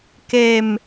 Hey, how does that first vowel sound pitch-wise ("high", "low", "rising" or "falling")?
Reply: low